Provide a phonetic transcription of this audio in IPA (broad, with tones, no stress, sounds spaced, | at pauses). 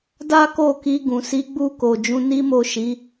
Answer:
d a˦ k o˦˨ k i˧ ɡ ũ˨ s i˨˦ ɡ͡b u˦˨ k o˨ d͡ʒ ũ˧ n i˦ m o˦˨ ʃ i˨˦